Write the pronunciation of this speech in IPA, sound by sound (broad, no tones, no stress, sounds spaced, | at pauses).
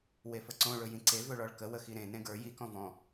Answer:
w e f ə ǀ õ ɭ ɵ j ĩ ǀ e v ɵ ɭ ɔ ɭ k ə w ə x i ɾ ẽ n ẽ ɡ ə˞ j i k ɔ̃ v ɔ̃